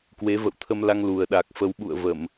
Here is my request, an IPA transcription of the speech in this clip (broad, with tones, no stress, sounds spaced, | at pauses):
k w e˨˦ v ə̰˧˨ w t̪ʰ ə˧ m l a˧ ŋ l u˨˩ ə̯ ɗ a˨˩ k̚ f ə˨˦ w ɓ ṵ˧˨ ə̯ v ə˧˩˨ m